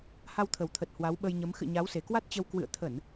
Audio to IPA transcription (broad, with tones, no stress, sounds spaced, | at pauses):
h a˧ w t̪ʰ ə˨˩ w t̪ʰ ə˨˩ t̚ h w a˨˦ w ɓ ə˧ j ɲ ə˨˦ m x ɨ̰˧˨ ɲ a˨˦ w s e˨˩ k w a˦˥ t̚ t͡ɕ ə˧ w k w ɨ̰˧˨ ə̯ t̪ʰ ə˧˩˨ n